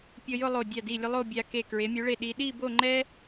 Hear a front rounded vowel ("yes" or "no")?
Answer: no